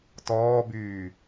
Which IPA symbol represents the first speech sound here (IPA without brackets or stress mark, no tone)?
t